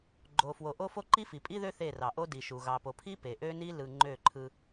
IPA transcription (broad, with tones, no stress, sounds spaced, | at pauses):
ɡ͡ǃ o˨ f w o˨ ʔ o˦ f o˦ ǃ i˦ f i˨ pʼ i˦ ð ø˦ θ e˦˨ r ɑ˨ ʔ o˦ d i˨ ʃ u˨ ɣ ɑ˨ p o˨ pʰ i˦ p e˨ ʔ ø˦ n i˦ l ɯ˨ ŋ͡ǃ ø˦˨ ǃʰ ɯ˦